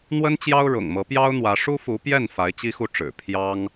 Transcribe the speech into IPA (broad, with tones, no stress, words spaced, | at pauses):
n̪wə˥nt͡ɕjɑ˥ʊ̯ ɻʊ̰˨˩ŋmɤ˧˥pjɑ˥ʊ̯n̪wä˧˥ ʂu˥fu˧˥pjɛ˥˩n fa˧˥ɪ̯t͡ɕi˥xu˥˩ʈ͡ʂɻ̩˨˩ pʰjɑ˥ŋ